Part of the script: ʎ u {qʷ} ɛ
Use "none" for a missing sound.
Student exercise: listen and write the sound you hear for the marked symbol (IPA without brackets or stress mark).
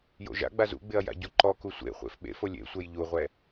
ʁʷ